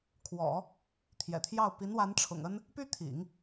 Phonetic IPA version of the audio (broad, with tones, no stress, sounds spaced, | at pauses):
kʰ w ɔ̰˨˩˦ | t̪ʰ j ɛ̰˨˩ t̪ʰ j ɑ˥˩ ʊ̯ p i˧˥ n w a˧˥ n ʈ͡ʂʰ ʊ̰˨˩ ŋ ə˥ n | p y˥ t̪ʰ ḭ˨˩˦ ŋ